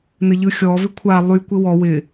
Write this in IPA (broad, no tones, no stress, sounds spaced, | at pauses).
n ɘ ʎ ɯ xʲ ɔ v ɪ kʷʰ a lˠ y kʷ ɪ w ɔ w ɪ